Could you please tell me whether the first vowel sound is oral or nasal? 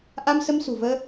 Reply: oral